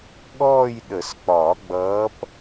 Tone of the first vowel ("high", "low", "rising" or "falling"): falling